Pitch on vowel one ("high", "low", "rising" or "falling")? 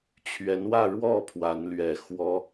rising